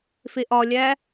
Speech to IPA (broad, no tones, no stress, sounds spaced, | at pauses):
f e ʔ ɒ lʲ æ